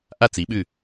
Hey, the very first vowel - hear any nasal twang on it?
no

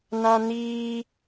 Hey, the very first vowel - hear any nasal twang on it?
yes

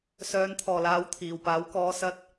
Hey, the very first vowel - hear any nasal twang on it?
no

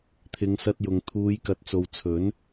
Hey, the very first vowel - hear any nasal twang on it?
no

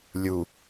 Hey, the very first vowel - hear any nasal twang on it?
no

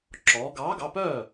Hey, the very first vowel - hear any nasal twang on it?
no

